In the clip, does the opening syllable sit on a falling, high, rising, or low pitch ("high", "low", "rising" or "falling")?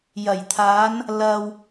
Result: low